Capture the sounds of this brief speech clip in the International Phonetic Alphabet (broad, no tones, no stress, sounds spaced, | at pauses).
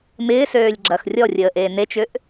m ɪː s øː lʲ ɡ͡ǁ ɐ x rʲ ɔ rʲ əː ʔ eː n e t͡ʃ ʏ ʔ